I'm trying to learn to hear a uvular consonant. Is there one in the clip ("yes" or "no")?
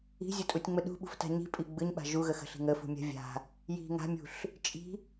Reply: no